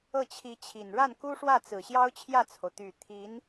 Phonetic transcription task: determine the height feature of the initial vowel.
mid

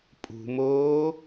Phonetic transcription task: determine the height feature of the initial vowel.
high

